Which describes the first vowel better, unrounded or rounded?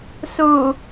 rounded